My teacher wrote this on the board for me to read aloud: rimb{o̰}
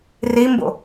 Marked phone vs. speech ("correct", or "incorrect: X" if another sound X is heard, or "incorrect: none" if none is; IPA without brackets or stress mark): correct